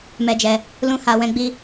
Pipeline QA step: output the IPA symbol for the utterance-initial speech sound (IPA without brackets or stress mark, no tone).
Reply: m